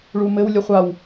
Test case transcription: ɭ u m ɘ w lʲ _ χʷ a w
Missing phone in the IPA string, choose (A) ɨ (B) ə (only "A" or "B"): B